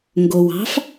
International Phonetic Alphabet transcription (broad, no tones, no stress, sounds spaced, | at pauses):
ŋ ɡ o w ɑ̤ f